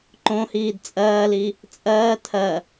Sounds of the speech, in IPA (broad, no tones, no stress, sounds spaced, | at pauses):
ǃ õ h iː d t͡sʼ ɜː l i | t͡sʼ ɜː tʰ ɜ